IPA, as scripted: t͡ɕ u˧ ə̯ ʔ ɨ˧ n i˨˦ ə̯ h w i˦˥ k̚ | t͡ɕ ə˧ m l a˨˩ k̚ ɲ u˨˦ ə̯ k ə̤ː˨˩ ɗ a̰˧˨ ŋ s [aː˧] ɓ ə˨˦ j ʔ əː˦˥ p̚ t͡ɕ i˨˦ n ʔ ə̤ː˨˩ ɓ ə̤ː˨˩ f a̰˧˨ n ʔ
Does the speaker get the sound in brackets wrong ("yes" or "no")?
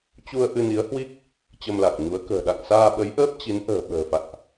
no